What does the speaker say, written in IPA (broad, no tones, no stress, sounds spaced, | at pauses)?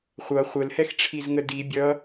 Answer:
χʷ ʌ χʷ ə l h ɛ x ʈ͡ʂʰ i z ŋ ə d i bʲ ʌ